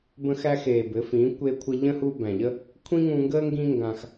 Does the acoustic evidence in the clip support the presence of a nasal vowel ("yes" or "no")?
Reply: yes